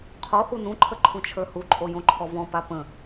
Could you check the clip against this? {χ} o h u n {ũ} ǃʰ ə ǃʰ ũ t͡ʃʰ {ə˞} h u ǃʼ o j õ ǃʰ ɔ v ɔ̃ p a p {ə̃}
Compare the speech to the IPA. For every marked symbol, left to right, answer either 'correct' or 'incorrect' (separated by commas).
incorrect, correct, correct, correct